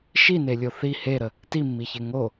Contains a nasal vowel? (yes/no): no